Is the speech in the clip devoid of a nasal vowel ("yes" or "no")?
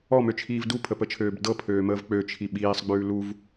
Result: yes